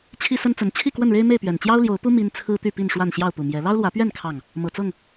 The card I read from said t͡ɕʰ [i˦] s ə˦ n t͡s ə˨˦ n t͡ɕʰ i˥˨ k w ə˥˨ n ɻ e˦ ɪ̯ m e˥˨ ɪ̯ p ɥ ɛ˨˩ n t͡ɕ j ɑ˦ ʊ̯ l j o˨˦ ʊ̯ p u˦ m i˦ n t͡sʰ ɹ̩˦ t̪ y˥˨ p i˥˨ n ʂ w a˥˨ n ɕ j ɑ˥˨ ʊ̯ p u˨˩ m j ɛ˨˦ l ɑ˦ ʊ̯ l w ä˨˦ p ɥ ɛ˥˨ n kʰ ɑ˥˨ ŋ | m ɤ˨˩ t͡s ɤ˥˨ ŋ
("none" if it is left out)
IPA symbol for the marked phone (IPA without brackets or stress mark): i˦